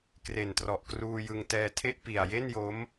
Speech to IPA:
kre˨˩ntrɔ˨˩ʔkruː˧jɯ˧ŋ tɛː˧tʰe˥˩ʔ pi˨˩a̯je˥˩njo˦˥m

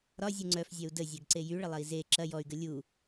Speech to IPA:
ɾɒzʲu ŋ͡ǀœfzʲœu̯ dəzʲœɡǀe jyɭəlˠɐi̯ ze ǁɐ jɔy̯ɡə lʲu

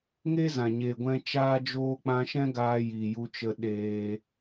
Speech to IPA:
ŋe˦zã˨ɲeː˨ɡʷɛ̃˧ t͡ʃaː˧d͡ʒoː˧k͡pã˧ʃɛ̃˦ ɡaː˧ jiː˨ju˧t͡ʃə˧ ɗeː˧

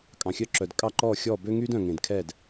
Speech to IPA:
kʼɑ̃˩xʲœ˧ǁœ˩d kʼɑ˥˩ǃɔː˥˩xʲɔː˥˩ bø˥ŋyː˥dœ̃˩ ŋẽ˩dkʰɛ˥˩d

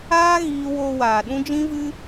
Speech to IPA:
aː˦ ɣiː˦ woː˧waː˨ɗũ˦ d͡ʒĩ˦vɨ˦

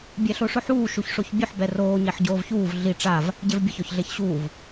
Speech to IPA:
bʲɛɬoʂʊħuː ʃuçʂoçbʲʊħ bɛroː ɲɛħɟoːvçuːv ɮi ʈ͡ʂav | ɟevbʲʊç ɔçɮeçɕuːv

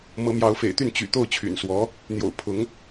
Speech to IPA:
mɤ˧˥mjɑ˧˥ʊ̯fḛ˨˩ɪ̯t̪y˥˩n t͡ɕy̰˨˩ t̪o˥˩ʊ̯t͡ɕʰy̰˨˩n swɔ˧˥ | n̪jo̰˨˩ʊ̯ pʰʊ˧˥ŋ

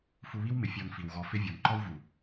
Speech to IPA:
fu˧βi˦wmɪ˨ fʲɔ˧n fi˨wɣɔ˧fɪ˦ vʲɔ˨nǃɔ˦wvu˨

